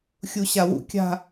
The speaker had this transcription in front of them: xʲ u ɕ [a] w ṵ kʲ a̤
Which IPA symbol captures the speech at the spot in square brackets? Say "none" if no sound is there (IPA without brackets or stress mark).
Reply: a